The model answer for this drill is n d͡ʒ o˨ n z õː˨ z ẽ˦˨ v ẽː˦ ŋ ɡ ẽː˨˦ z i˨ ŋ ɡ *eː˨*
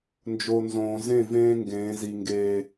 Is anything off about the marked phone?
no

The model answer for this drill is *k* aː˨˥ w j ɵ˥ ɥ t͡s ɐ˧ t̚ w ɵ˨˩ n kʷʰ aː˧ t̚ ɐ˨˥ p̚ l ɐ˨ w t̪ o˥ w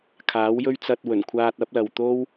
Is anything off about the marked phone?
yes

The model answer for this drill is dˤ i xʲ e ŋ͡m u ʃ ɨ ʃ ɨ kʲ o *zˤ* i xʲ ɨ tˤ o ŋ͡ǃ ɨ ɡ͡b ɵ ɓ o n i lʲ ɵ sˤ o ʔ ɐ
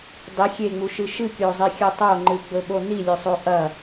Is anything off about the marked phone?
no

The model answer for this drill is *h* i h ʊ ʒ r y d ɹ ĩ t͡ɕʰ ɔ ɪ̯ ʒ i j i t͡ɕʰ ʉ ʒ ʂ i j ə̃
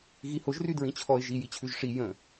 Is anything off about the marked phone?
yes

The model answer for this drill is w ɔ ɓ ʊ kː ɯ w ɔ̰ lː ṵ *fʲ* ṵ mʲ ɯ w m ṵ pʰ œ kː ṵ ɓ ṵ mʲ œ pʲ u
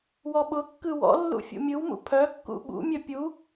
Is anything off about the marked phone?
no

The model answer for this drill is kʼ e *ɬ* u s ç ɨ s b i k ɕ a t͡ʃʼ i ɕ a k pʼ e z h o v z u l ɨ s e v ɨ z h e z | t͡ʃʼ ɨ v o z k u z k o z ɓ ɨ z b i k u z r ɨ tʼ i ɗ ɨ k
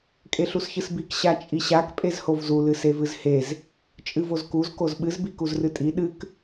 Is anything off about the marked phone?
no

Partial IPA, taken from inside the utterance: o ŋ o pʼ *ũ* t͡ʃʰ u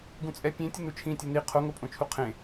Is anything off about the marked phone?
yes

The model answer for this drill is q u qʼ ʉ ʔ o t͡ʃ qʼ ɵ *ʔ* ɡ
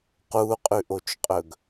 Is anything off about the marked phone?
yes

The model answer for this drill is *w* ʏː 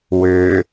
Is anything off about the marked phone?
no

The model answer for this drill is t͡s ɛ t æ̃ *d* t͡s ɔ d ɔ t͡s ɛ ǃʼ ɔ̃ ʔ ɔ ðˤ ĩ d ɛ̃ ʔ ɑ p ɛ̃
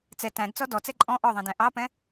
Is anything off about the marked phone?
no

